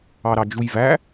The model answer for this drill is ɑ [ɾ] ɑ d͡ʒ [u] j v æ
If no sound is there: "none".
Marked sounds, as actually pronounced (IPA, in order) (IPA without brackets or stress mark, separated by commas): ɾ, u